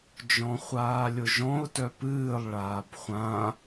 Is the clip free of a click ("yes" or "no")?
yes